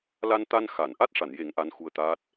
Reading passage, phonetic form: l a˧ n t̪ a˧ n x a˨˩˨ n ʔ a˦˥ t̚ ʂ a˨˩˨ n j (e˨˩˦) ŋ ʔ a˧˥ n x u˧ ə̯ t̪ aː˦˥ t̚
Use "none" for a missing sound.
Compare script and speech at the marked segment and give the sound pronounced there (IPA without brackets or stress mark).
e˨˩˦